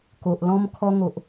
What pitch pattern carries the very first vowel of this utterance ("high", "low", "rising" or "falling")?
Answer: low